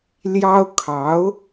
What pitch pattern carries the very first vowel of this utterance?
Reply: high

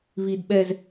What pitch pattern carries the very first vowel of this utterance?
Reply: high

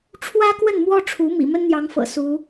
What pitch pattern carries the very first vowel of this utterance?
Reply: high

